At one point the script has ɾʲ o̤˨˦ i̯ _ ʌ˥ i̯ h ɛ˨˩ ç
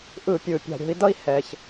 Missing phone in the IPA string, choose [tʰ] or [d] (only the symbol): d